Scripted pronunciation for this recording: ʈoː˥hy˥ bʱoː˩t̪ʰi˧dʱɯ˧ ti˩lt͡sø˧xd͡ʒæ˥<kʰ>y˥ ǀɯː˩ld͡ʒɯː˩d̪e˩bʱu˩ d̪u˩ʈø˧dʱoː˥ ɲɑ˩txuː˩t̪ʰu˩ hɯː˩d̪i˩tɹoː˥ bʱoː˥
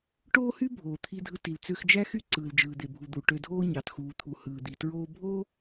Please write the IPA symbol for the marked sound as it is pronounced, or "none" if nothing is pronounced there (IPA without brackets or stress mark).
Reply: x